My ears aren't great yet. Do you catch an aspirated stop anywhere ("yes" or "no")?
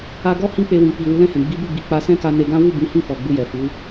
no